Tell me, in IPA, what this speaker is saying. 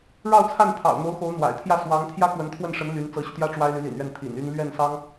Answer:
ɻ ɑ˥˧ ʊ̯ t͡sʰ a˥˩ n t̪ʰ ɑ̰˨˩ ʊ̯ n̪ o˧˥ ʊ̯ x o˧˥ ʊ̯ n̪ w a̰˨˩ ɪ̯ t̪ʰ j ä˥˩ s w ɑ˧˥ ŋ t̪ʰ j ä˥ k w ə˧˥ n t̪ʰ w ə˥˩ n ʂ ə˧˥ n l y˧˥ n t͡s ɤ˧˥ ɕ y˧ t̪ j ä˥ ʈ͡ʂ w a˥ ɪ̯ l y˧˥ l ḭ˨˩ n ɥ ɛ˥˩ n t̪ʰ ḭ˨˩ n y˥ n l ɥ ɛ˥˩ n s ɑ˥ ŋ

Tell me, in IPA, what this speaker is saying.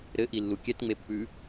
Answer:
ɾ ɘ ʔ i lː u kʲ ɛ t ŋ͡m e pː ʉ

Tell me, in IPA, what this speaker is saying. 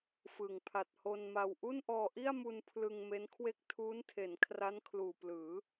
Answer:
f ɯ˩˦ ŋ pʰ a˨˩ t̚ h o˧ n m a˧ w ʔ u˥˩ n ʔ ɔː˧ ʔ i˥˩ a̯ m u˧ n pʰ l ɯ˧ ŋ m e˦˥ n kʰ w e˥˩ k̚ tʰ uː˦˥ n tʰ e˩˦ n kʰ r a˦˥ n kʰ l uː˨˩ p l ɯː˩˦

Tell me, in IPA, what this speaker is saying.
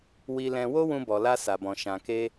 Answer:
w i˦ l ɛ̃˦ w o˦ w ũ˧ b ɔ˨ l a˧ s a˨ b ɔ̃˨ ʃ ã˨ k e˧

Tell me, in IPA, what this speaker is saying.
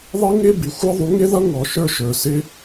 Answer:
ðˤ i˦ ŋ ɪ˦ b i˨ xʷ ʌ˦ ðˤ u˨˦ ŋ ɪ˦ ð ʌ˦ ŋ ɔ˨ ʃ ə˞˧ ʃ ə˞˨ s ɪ˦

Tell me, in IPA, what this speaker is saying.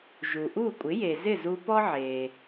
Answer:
ʒ u˩ ʔ u˥˩ kʷʼ ɪ˩˥ j e˩ z ɪ˥˩ z u˧ p ɔ˥ ʕ e˩

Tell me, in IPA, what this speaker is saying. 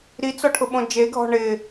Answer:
ɾ i t͡s ɔ ʈʰ ʊ ɓ õ d͡ʒ e ɡʱ ɔ̤ ɳ ɪ

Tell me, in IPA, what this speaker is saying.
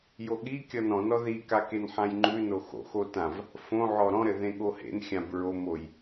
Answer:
j o ɠ i kʲ ʌ n ɔ̃ n ɔ ð i k a k e n ħ ã j ŋ͡ǃ ʉ n o x o̰ x o t ã v | f õ ʕ ɔ ɾ ɔ̃ ɾ ɘ ð ẽ ɠ o h ḛ n xʲ ã b ɹ o m o j

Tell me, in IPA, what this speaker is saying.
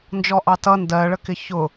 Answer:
n d͡ʒ ɔ ʔ ɑ t ʌ n d ɜ ɭ ə k ɪ ç ʊ

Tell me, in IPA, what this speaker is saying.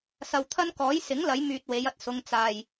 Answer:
s ɐ˨ w t̪ʰ ɐ˥ n k ɔː˨˥ j s ɪ˨˥ ŋ l ɐ˨˧ j m yː˨ t̚ w e˨˧ j ɐ˧ t̚ s ʊ˨˧ ŋ t͡s aː˨ j

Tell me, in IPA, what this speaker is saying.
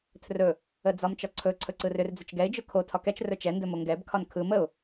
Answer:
tʰ r ɵ | ə d͡z ɒ m t͡ʃ ɒ ǀʰ ɵ ǀʰ ɵ ǀ ɯ r ʏ r d͡z ʏ t͡ʃ ɡ ɛ ɪ̯ d͡ʒ ɵ kʰ o tʰ ɒ k ɛ t͡ʃ r ɵ t͡ʃ ɛ n d ɵ m o ŋ ɡ ɛ b kʰ ɒ n kʰ ɯ m ə ʊ̯

